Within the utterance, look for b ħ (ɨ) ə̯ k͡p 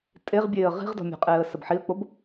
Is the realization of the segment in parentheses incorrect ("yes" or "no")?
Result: yes